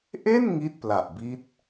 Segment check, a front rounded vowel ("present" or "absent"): absent